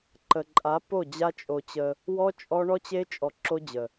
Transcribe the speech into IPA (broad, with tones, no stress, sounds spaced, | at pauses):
ǃ ə˨ ǃʼ a˨˦ p o˦˨ d͡ʑ a˦ t͡ʃʼ o˧ t͡ɕ ə˧ | w ɔ˦ t͡ʃʼ ɔ˦ ɳ ɔ˦ t͡ɕ e˦ t͡ʃʼ ɔ˧ ǁ o˦ d͡ʑ ə˨